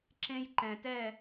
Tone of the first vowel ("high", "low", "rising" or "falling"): high